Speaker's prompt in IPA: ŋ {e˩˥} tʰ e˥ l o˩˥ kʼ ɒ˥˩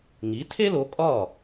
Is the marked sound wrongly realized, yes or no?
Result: yes